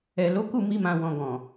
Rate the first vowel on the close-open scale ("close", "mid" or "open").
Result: mid